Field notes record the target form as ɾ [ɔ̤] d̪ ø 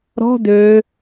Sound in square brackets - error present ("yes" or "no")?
no